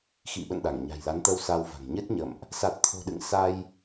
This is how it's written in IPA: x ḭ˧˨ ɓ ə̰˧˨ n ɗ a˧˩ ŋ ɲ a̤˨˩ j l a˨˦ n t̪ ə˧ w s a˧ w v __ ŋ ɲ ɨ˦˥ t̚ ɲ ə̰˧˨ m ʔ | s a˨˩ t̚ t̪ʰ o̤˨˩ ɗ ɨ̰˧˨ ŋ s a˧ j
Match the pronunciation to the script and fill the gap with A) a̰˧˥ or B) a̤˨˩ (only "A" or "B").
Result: B